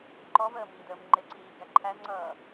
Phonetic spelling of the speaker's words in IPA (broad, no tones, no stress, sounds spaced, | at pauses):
ǃ ɔ v əː m iː d əː m ŋ͡ǃ ɪ ǀ iː ɡ æ ǃʰ æ z ŋ͡ǀ ʌː